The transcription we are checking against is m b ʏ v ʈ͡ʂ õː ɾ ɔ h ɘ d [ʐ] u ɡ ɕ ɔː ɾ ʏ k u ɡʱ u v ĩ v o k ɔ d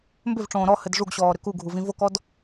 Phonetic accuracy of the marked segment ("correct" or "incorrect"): correct